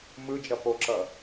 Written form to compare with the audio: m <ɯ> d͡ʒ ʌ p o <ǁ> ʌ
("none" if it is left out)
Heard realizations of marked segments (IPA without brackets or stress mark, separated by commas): ɯ, ǁ